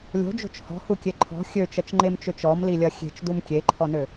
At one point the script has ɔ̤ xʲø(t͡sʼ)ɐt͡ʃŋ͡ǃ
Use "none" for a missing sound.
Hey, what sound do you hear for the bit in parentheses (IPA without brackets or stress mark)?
t͡ʃ